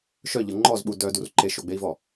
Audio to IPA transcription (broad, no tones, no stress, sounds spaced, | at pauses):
ʃ œ ʎ ɤ ŋ͡ǃ ɔ z ɓ u d œ d u r ǃ e ʃ o ɡ͡b e i̯ v ɔ